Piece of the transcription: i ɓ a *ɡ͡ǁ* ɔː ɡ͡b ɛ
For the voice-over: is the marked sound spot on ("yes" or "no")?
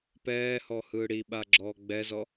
yes